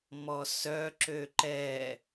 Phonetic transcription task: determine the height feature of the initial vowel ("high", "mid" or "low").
mid